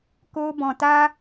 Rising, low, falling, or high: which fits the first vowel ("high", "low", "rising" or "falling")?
high